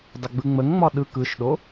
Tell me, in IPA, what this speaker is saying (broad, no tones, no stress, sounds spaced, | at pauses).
dˤ ə ɡ͡b ɯ ŋ͡m ə ŋ ŋ͡m ɒ ɗ ɯ k ɯ ʃ ɗ o